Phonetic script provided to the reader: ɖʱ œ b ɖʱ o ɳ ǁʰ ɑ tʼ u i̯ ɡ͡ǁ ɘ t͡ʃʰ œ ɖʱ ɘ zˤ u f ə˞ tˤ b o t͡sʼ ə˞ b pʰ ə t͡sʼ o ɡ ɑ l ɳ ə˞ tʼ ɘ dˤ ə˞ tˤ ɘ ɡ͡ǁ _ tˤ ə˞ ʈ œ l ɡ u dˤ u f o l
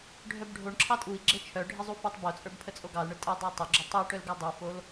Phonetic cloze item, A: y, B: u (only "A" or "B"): B